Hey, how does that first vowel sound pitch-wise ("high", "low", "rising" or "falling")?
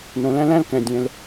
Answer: low